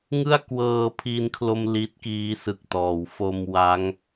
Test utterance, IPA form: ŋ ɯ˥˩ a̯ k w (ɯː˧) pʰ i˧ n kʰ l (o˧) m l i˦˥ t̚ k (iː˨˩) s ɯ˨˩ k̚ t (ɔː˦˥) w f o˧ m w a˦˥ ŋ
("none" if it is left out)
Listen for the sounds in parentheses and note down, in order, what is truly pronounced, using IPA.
ɤː˧, o˧, iː˦˥, ɔː˩˦

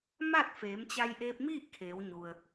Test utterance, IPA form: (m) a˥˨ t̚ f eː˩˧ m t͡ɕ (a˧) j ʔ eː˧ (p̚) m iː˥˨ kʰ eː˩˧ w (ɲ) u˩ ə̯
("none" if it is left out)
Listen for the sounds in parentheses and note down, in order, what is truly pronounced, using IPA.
m, a˧, p̚, ɲ

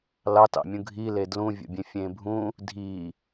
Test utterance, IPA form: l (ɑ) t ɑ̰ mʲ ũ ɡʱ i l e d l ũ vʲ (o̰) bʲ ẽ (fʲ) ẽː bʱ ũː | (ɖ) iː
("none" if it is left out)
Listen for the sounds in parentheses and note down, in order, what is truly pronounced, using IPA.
ɑ, o̰, fʲ, dʱ

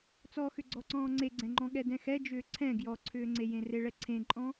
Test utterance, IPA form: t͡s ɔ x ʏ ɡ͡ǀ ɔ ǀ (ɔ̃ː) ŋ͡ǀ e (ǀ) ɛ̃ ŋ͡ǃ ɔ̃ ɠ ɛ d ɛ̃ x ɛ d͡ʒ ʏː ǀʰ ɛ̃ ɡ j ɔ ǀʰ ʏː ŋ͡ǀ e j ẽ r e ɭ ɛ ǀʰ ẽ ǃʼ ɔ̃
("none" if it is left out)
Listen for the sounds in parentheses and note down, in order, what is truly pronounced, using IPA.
ɔ̃ː, ɡ͡ǀ

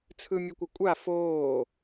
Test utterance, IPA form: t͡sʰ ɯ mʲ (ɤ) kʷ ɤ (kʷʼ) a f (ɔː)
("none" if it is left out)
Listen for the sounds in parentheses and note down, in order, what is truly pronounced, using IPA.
ɯ, kʷʼ, oː

